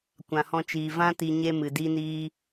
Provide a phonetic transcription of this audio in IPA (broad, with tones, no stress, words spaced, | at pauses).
kʷã˨hɔ̃˧t͡ʃiː˨ vã˦ti˧ ɲe˦mɨ˨di˦niː˦